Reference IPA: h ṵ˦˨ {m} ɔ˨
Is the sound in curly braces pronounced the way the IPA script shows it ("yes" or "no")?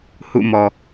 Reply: yes